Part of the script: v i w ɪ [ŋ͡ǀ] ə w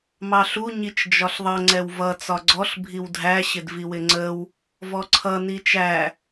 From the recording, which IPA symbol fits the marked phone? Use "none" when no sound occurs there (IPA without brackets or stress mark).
ŋ͡ǀ